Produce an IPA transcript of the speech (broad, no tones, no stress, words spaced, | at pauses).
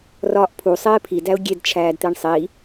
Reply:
rɒːʔpʰu sˤeːpʰi dæʊ̯ɡʲed t͡ʃʰæːdt̪eɳsˤi